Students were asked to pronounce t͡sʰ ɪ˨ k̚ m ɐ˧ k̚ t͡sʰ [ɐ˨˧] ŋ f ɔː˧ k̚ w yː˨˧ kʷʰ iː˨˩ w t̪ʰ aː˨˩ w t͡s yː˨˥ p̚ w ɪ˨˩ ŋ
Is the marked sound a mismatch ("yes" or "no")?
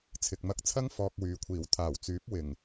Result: yes